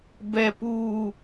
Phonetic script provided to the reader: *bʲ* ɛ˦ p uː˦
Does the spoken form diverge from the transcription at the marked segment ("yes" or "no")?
yes